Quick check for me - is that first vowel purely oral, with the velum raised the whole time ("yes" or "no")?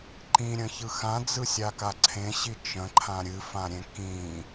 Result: no